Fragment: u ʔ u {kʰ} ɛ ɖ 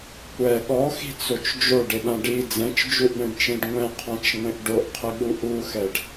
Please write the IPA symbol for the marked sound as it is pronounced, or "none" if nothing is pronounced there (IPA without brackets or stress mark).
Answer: x